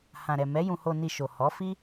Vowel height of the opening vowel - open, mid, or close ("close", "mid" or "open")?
open